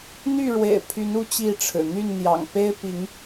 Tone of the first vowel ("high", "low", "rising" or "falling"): falling